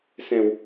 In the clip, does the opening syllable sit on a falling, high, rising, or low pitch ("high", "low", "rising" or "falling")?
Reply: low